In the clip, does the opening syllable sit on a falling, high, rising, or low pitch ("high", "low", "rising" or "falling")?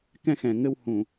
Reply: high